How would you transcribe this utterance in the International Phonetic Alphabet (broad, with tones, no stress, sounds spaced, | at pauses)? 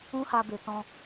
ũ˦ h a˧ b e˨ t ɔ̃˧